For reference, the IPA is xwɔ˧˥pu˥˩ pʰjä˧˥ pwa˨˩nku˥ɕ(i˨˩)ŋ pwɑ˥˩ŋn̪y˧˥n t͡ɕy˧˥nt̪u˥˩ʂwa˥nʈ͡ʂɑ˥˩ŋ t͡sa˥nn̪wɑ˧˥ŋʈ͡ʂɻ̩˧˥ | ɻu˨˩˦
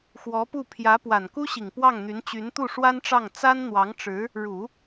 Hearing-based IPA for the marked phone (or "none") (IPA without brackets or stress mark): i˨˩